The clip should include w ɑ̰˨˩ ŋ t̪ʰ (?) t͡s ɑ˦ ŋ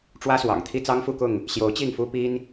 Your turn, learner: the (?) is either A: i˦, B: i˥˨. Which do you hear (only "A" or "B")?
A